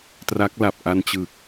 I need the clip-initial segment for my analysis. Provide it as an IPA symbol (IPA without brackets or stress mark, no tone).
t